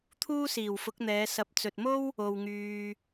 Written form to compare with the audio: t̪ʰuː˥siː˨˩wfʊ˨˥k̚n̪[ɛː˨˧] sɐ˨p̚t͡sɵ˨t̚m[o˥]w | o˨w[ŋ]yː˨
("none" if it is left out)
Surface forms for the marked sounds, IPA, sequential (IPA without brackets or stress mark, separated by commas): ɛː˨˧, o˥, ŋ